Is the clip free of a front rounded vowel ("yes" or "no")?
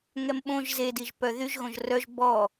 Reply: no